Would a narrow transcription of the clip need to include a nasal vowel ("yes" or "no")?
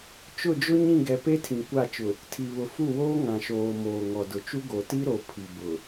yes